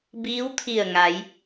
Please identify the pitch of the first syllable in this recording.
rising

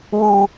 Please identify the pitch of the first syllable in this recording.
high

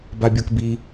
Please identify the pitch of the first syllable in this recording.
high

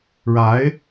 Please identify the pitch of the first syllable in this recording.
rising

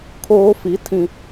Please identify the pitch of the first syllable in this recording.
high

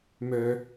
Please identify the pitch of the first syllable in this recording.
low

